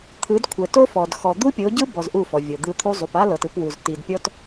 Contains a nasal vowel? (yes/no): no